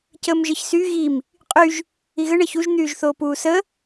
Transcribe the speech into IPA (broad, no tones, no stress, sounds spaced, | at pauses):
c əː m ʒ ɘ ç s y ɣ i m | qʼ y ʒ | i ɣ ɘ ɳ əː ç u ʒ n̪ yː ʒ θ oː p uː s ə